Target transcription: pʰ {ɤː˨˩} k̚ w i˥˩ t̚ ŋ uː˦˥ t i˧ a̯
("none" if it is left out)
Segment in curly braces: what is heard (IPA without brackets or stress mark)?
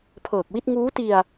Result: ɤː˨˩